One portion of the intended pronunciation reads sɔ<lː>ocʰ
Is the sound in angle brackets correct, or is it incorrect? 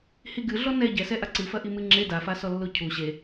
correct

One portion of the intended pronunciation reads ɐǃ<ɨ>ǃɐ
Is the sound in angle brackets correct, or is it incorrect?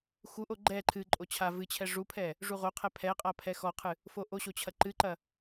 correct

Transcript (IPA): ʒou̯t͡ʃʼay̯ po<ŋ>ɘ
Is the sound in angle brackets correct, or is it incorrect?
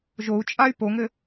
correct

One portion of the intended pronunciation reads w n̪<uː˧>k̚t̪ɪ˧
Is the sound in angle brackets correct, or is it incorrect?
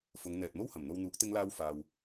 incorrect: uː˨˥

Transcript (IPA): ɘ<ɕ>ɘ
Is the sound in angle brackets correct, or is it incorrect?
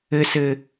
incorrect: s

